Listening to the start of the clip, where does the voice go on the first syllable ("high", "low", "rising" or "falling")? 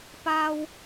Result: high